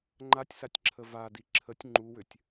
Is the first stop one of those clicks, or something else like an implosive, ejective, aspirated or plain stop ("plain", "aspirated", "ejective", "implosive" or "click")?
click